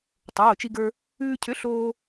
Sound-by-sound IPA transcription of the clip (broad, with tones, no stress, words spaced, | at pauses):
tˤoː˩˧˩t͡ʃi˧ɡə˞˧ | ʉː˧cʰʏ˨˥ ɬoː˧